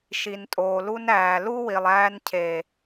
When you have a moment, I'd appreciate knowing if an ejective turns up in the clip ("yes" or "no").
yes